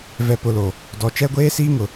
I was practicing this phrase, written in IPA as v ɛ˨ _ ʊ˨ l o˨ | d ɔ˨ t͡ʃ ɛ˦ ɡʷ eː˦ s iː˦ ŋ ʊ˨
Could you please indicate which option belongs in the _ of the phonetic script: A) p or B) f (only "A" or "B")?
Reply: A